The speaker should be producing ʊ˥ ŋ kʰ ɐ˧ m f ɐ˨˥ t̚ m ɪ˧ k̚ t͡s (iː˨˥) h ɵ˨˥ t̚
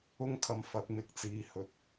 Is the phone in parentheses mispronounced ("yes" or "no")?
yes